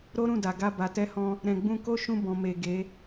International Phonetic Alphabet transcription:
ɾ o˦ ɾ ũ˦˨ d a˨ ɡ a˧ b a˨ t ɛ˧ h ɔ̃˧ | ɾ ɛ̃˨ ɡ͡b ũ˧ k o˦ ʃ ũ˧ b ɔ̃˨ m e˨ ɡ e˨˦

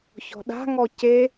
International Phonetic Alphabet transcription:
ç ɔ̤ ɗ a̤ ŋ ɔ c e

